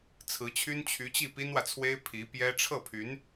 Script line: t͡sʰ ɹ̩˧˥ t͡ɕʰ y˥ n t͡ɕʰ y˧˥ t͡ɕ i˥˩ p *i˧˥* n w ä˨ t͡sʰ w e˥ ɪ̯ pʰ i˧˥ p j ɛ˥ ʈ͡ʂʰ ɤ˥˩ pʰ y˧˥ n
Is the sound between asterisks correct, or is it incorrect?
incorrect